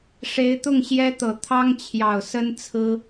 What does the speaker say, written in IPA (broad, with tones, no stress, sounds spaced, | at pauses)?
ʂ e˧˥ ɪ̯ t̪ ʊ˥˩ ŋ ɕ j ɛ˥ t̪ ɤ˨˩ t̪ʰ ɑ˥ ŋ t͡ɕʰ j ɑ˨˩ ʊ̯ s ə˥ n t͡sʰ ɹ̩˥